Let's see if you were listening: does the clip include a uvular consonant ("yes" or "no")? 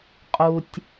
yes